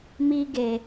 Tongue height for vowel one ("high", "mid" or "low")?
high